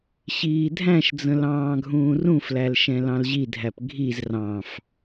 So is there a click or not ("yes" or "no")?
no